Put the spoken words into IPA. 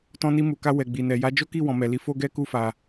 tɔ̃˧ni˧mu˨ka˧ wɛ˨ɡ͡bi˨nɛ˨ ja˨˦d͡ʒo˦ki˦˨ wɔ̃˨mɛ˨li˨˦ fo˦ɡɛ˦ku˦˨fa˨

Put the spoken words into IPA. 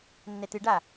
nːɛtɨɖa

